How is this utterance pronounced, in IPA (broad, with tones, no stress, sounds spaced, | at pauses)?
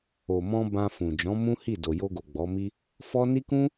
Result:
o˨ m ɔ̃˧ b ã˧ f ũ˨ d͡ʒ ɔ̃˨˦ m ũ˦ h i˦˨ d o˨ j o˧ ɡ o˨ ɡ͡b ɔ˨˦ m i˦ | f ɔ˦ n i˦ k ũ˦